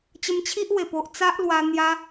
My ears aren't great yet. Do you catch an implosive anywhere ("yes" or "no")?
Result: no